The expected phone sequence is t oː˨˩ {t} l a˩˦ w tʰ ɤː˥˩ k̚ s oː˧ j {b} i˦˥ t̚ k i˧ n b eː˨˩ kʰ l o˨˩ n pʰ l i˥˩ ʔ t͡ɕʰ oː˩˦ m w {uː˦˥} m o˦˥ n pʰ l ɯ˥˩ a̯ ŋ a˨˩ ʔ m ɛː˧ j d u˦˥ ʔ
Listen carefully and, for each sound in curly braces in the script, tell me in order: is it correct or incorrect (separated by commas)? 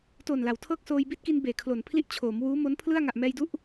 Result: incorrect, correct, correct